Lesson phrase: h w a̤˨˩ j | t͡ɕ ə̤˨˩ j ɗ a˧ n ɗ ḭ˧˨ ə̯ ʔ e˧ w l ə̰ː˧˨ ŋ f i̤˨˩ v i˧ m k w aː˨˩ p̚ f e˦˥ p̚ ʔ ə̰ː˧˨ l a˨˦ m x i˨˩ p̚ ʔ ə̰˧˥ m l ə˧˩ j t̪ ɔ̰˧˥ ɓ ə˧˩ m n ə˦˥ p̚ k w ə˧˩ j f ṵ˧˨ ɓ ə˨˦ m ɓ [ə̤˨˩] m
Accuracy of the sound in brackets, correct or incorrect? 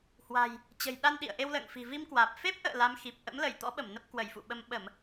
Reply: incorrect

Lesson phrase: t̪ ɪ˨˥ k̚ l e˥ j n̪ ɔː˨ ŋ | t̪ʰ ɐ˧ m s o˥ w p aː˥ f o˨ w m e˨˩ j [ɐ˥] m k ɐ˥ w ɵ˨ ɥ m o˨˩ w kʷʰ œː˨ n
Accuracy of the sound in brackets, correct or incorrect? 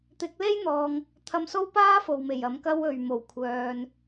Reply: incorrect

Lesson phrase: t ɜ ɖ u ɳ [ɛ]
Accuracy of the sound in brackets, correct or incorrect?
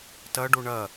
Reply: incorrect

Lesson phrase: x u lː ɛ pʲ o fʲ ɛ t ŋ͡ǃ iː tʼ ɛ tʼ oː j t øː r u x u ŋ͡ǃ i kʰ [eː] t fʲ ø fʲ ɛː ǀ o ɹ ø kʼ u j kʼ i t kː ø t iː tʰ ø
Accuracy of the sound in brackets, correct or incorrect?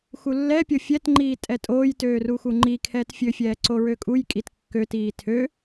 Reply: incorrect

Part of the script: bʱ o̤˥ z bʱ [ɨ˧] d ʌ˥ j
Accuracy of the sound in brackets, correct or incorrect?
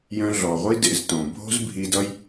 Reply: incorrect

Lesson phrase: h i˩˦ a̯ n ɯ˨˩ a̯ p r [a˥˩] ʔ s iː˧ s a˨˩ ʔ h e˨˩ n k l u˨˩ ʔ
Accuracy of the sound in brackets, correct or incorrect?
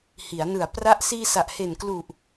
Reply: incorrect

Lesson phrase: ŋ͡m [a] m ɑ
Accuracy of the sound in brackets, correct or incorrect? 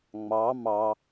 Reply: incorrect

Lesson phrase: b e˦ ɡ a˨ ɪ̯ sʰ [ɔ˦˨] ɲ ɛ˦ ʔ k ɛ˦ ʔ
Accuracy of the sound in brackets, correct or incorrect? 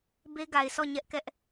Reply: correct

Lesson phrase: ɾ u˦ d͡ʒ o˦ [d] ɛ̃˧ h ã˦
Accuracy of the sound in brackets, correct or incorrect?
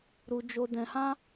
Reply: correct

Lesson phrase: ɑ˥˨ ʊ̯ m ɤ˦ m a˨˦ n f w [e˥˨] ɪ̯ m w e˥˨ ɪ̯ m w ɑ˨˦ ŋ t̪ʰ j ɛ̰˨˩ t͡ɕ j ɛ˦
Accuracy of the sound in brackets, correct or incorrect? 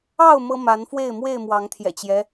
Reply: correct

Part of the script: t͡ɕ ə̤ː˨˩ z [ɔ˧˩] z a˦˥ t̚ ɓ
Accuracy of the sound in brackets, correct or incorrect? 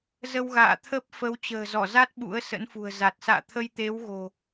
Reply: correct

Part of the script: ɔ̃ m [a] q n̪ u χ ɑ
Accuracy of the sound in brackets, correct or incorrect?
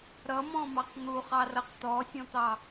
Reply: incorrect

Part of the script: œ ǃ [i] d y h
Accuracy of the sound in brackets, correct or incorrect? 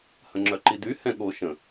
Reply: correct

